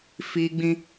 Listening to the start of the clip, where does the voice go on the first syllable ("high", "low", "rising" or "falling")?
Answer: high